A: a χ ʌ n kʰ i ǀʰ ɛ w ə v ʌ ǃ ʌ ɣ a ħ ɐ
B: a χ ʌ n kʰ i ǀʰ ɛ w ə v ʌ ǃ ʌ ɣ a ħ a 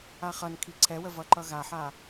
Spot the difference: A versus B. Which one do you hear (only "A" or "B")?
B